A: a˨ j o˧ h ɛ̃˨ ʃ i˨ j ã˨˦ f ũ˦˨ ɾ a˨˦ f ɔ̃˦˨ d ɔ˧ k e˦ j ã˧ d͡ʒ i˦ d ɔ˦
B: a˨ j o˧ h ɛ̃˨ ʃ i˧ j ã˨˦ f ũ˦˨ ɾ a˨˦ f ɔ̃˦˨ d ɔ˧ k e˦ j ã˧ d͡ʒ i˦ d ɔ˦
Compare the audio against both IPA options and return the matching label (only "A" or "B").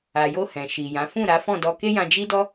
A